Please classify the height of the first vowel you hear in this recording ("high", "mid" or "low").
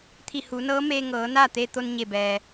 high